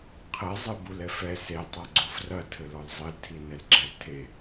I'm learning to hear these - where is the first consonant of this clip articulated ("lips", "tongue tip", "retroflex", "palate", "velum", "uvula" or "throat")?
uvula